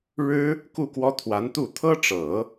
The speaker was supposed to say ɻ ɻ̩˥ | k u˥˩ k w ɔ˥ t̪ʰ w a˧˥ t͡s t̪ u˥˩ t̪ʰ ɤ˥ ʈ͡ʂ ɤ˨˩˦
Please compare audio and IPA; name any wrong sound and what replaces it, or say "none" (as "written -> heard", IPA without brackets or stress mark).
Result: t͡s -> n